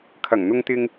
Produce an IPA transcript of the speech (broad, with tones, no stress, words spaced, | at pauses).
kʰɐ˨˩ŋn̪ʊ˧ŋt̪ɪ˧ŋ